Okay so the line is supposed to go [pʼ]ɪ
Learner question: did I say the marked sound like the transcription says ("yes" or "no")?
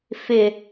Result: no